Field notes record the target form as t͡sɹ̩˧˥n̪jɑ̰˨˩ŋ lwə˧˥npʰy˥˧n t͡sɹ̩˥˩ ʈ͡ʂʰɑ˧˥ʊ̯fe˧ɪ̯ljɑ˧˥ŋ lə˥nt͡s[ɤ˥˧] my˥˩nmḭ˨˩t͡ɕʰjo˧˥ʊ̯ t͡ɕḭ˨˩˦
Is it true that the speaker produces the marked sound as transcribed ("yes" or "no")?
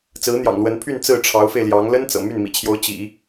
no